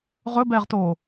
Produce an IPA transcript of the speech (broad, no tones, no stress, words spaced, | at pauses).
ʁɵbɛːʁtoː